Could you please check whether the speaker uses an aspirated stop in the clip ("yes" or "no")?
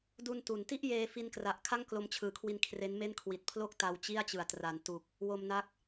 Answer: yes